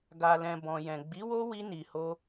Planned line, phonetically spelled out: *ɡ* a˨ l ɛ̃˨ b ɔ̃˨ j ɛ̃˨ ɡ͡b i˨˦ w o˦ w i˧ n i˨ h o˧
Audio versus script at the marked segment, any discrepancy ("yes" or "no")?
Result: no